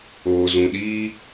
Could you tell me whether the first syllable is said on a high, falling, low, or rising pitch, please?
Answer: low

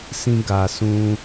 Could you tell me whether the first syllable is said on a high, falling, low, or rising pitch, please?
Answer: high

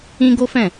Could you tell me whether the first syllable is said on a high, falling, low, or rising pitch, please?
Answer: high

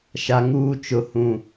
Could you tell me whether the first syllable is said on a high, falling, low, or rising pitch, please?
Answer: high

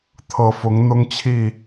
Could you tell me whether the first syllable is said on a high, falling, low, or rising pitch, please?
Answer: low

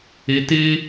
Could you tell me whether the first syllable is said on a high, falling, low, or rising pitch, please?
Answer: high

